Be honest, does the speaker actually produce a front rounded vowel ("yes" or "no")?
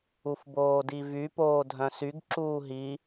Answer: yes